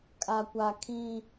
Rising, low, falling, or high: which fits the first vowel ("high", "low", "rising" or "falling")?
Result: high